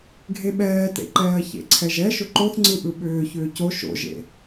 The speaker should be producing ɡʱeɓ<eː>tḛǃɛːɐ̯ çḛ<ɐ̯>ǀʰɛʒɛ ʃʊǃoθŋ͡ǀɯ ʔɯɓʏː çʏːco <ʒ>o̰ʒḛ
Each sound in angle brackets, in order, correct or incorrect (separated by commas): incorrect, incorrect, incorrect